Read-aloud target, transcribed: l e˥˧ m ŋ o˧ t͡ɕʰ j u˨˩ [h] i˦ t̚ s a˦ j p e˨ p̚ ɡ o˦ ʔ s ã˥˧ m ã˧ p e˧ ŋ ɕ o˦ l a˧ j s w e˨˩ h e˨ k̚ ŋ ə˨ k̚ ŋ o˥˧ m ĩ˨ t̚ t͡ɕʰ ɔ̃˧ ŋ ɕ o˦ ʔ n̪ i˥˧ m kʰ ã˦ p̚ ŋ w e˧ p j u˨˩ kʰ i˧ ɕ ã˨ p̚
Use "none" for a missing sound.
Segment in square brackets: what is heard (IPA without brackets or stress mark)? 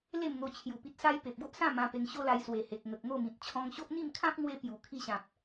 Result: p